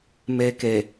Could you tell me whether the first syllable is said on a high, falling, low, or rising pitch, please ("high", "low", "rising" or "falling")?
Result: low